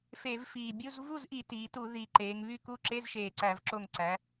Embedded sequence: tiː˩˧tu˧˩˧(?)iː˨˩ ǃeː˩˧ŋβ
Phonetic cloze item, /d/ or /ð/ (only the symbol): ð